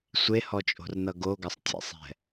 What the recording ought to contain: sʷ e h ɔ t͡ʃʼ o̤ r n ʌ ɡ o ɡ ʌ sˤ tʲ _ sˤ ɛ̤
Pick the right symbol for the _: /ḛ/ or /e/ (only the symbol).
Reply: ḛ